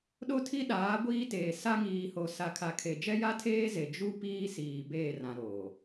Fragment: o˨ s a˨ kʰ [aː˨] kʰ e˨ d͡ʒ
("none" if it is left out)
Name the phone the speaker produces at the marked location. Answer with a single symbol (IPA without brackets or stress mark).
a˨